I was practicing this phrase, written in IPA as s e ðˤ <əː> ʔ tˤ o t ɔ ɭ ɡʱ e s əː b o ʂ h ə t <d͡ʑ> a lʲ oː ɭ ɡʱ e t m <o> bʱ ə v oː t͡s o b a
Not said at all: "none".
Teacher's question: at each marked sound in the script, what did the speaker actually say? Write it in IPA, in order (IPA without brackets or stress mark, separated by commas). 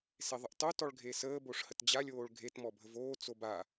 ə, d͡ʑ, ɔ